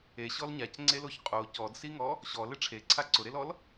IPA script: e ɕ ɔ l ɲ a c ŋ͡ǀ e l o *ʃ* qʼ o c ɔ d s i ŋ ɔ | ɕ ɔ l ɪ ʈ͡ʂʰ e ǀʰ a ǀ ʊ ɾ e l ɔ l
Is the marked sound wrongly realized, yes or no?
yes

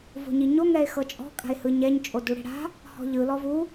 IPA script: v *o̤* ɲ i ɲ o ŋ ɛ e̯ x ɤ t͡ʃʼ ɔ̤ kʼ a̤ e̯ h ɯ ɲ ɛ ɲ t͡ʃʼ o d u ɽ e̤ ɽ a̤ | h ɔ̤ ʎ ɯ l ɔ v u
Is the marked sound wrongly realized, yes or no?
no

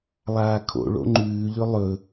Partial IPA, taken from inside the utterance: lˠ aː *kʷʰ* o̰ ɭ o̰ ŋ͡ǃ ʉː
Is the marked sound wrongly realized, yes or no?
yes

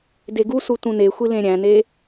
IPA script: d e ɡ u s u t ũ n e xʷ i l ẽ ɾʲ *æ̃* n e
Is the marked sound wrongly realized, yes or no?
no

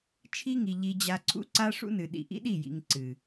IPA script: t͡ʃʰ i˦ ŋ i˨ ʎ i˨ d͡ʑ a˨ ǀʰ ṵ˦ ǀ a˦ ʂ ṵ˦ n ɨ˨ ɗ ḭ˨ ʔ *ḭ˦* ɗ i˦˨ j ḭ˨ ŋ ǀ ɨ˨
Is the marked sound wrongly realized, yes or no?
no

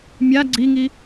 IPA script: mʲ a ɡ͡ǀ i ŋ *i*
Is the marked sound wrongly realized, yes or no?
no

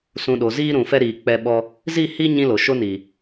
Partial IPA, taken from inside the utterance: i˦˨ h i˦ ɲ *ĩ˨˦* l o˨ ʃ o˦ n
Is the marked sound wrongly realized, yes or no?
yes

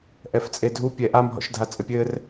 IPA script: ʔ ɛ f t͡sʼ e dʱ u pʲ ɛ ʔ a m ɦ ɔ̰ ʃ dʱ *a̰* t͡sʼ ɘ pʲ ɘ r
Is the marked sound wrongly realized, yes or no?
yes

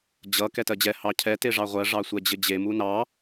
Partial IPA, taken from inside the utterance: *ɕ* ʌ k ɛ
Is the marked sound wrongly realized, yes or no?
yes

